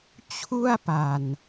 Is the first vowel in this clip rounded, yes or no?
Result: yes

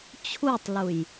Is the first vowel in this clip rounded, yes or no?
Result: yes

